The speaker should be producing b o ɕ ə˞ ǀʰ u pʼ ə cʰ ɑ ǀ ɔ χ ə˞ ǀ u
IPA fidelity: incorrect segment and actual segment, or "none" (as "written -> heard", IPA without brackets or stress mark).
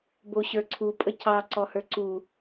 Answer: χ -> h